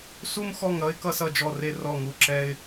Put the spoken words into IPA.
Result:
su˥mxɔ˥˨ŋɾʌ˥ɪ̯ kʌ˥sʌ˥˨d͡ʒɔ˥˨re˥ rɔ˥˨ŋu˥˨ ǁɛ˥ɪ̯

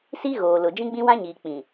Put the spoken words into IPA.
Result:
si˦ɣoː˨lʊ˨ d͡ʒĩ˦ɡ͡bĩ˦wã˦ɲiː˨ k͡pĩ˨

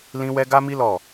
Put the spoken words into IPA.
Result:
lĩ˦wɛ˦ ɡa˦mi˦ lɔ˦˨

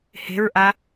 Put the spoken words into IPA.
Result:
he̤ɹʔa

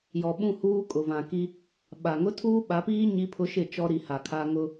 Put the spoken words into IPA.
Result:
jɔ˨ɓũ˦˨huː˦ kʼʊ˨ vã˨ki˦ | ɓa˨ ŋʊ˦tʰuː˦ɓa˨˦piː˦ ɲi˦pʰʊ˦ʃɪ˦˨ t͡ʃɔ˦ɾi˨ha˨ kʰa˦ ŋʊ˦

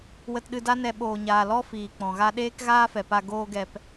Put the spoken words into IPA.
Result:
wə˧tɗɨ˧da˦ nɛ˧ ɓoː˨ɲaː˨ lɔ˦ fiː˨k͡pɔ̃˨ɣa˧ ɗeː˦kɣaː˦fɛ˨pa˧ ɡoː˦ɡɛ˧p

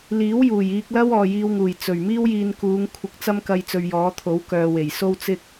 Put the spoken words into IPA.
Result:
liː˨˥wjuː˨˩j iː˧k̚lɐ˥w ɔː˨jiː˧wŋuː˨˩j t͡sɵ˨˩ɥ miː˥wjiː˧n kuː˨˧ŋ kʷʰɪ˧k̚t͡sɐ˥mkɐ˧j t͡sɵ˧ɥjɔː˨˥ t̪ʰo˨˥wkœː˨ we˨˩jso˥w t͡sɪ˥k̚

